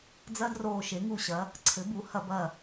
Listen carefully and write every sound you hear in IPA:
d͡zɐ˦˥ droː˧˩ʃe˩˥ŋu˧˩ɕɐ˩˥ | ǀʰɘ˩˥bu˩˥hɐ˧˩˧bɐ˧˩

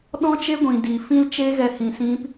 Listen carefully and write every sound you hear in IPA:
ɗɔ̃˦t͡ʃe˦ɡʷĩ˨ di˨ fĩ˦lt͡ʃe˦ɣɛ˧hĩ˨ sĩ˦p

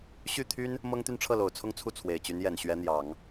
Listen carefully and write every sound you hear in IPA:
ɕy˥˩t̪ʰy˥n | mɤ˥ŋt̪y˥˧nʈ͡ʂʰɤ˥˩lo˨˩ʊ̯ t͡sʰʊ˥˧ŋt͡sʰu˥˩ t͡sʰwe˨˩ɪ̯t͡ɕy˧˥njɛ˨˩n ɕɥɛ˧˥n̪jɑ˨˩˦ŋ

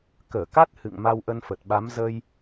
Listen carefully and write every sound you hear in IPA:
kəː˧˩ka˦˥t̚ hɨ̰˧˨ŋ ma˧wʔə˧nfə˨˩t̚ɓa˨˦m zə˧j

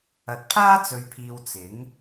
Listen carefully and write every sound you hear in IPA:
ɐ˨t̚pʰaː˥t͡sɵ˨ɥpʰiː˨w t͡sɪ˨˥ŋ

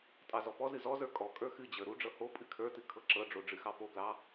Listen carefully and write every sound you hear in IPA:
tʼɑzɔpɔzɨ zɔzə˞ kʼɔ kʼə˞xɨd͡ʑə˞ ɾuɖ͡ʐɤ ho pʼɨkʰə˞tɨ kʰɤǁɤɖ͡ʐo ɖ͡ʐɨxɑpoɡlɑ

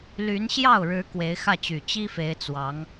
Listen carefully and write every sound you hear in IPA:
ly˧˥nɕjɑ˥˩ʊ̯ɻɻ̩˧˥ kwe˧˥ɪ̯xä˥˩t͡ɕy˨˩ t͡ɕi˥fe˧˥ɪ̯ t͡swɑ˧˥ŋ

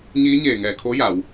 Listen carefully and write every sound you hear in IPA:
ɲiː˧˥ɲeː˧˩ŋɛː˧˩ kʰo˧˥ja˩˧w

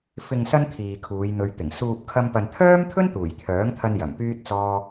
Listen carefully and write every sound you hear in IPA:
fɪ˨ŋ sɐ˥nt̪ʰiː˨kʰuː˨˧j n̪ɵ˨˧ɥt̪ɪ˨˩ŋ suː˨p̚kʰɐ˧mpɐ˨n t̪ʰœː˥mt̪ʰɵ˥n t̪uː˨˩jt̪ʰœː˨˥ŋt̪ʰɐ˧n jɐ˨˩mpyː˥t̚t͡sɔː˥

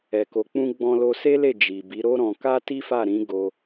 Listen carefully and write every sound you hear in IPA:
ɛ˨ko˨k͡pũ˧ ɡ͡bɔ̃˧lo˧se˦le˦˨ d͡ʒi˨ bi˨˦ɾo˦ɾɔ̃˧ ka˦ti˦fa˦˨ ɾĩ˨˦ ɡo˧

